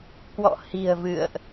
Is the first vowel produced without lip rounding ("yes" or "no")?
no